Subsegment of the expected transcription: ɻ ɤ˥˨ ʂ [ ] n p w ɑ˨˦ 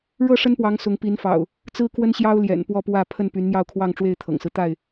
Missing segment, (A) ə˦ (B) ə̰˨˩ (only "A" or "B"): A